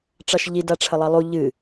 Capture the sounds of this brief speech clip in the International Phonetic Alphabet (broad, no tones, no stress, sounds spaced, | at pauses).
ʈ͡ʂ ɑ ʃ ʎ i d a ʈ͡ʂʰ ə lˠ ɑ lˠ u ʎ ɨ